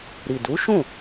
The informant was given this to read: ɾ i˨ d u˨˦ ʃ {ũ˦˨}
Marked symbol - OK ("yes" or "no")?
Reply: yes